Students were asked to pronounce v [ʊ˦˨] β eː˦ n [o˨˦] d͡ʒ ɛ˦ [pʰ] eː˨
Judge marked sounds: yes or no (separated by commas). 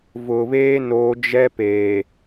no, yes, no